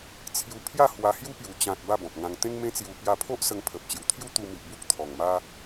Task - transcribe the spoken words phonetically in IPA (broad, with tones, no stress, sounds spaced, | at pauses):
t͡sʰ j u˧ pʰ j a˥˧ h w a˧ h j u˦ p j u˨˩ t͡ɕ ã˨ t̚ b a˥˧ b ɔ̃˨ p̚ ŋ ã˧ ŋ t̪ ẽ˦ ŋ m ẽ˦ t͡s j u˧ p j a˧ pʰ o˦ ʔ s ə˧ ŋ pʰ ə˨ p̚ t͡ɕ j u˨˩ t̪ʰ j u˦ t̪ u˧ m i˨ ʔ b u˦ k̚ t̪ʰ ɔ˨˩ ŋ m a˦